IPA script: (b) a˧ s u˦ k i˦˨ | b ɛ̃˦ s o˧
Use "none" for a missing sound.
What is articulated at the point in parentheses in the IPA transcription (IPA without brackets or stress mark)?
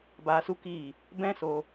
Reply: b